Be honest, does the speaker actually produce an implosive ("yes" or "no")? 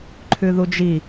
no